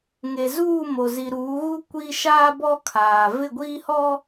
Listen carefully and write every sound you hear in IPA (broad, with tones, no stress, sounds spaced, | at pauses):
ŋ e˨ z uː˦˨ m o˨ z i˨ ɾ uː˨˦ ɣ u˦ kʷ i˦ ʃ aː˦ b ɔ˦ kʰ aː˨ v ɪ˦˨ ɡʷ iː˦ h ɔ˦